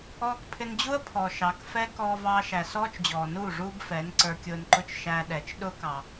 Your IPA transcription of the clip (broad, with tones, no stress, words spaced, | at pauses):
ɔː˧kpʰɪ˧nd͡ʑu˦ə̯ pʰɔ˨ʃɑ˨˦k fɛ˦ kɔː˧vɑː˧ʃæ˨ sɔː˦t͡ʃd͡ʑɔː˨nuː˦˨ ʐuː˦bfɛ˨˦n ǀə˞˧kʲʊː˧nǃʊ˦˨t͡ʃ ʃæ˧ ɗɛ˨t͡ʃ ɗʊː˦kɑ˨